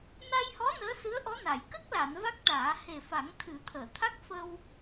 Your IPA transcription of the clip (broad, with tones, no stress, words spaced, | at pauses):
na˧jhɔ˧˥ nəː˧˥sɨ˧˥ə̯ʔɔ˧˥na˨˩˨j kə˦˥k̚la˨˩˨n va˦˥k̚ʈaː˨˩˦ he˨˩fa˨˩˦ŋ t̪ʰɨ˨˩˦t̪ʰəː˨˩˨t̪ʰa˦˥k̚ fə˧w